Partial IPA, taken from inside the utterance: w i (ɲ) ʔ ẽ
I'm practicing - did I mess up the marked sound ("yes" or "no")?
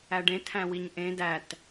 no